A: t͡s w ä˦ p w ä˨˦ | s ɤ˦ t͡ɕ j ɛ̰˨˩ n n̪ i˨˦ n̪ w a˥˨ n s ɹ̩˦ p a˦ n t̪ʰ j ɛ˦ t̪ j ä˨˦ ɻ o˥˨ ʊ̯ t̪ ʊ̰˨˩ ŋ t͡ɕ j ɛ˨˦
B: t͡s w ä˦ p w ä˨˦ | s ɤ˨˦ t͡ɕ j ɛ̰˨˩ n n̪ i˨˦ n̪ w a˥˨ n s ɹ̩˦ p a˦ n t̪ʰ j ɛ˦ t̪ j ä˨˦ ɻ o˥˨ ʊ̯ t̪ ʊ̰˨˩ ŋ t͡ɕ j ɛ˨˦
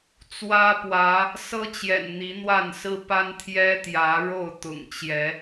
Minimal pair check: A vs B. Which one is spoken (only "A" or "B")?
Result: A